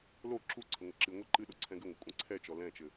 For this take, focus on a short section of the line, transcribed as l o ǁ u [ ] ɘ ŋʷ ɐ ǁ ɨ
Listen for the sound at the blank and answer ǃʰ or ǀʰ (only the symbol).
ǀʰ